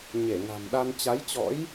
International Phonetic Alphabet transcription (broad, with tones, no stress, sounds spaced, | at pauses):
ɲ e˧˩ ŋ a̤˨˩ m ɗ a˧ n t͡ɕ a˨˦ j t͡ɕ ɔ̰˧˥ j